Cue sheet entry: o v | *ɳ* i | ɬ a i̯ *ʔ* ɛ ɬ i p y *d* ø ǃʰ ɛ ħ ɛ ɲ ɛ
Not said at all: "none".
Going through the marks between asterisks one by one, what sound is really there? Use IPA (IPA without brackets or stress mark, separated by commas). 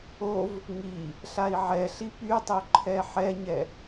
ŋ, ʕ, tˤ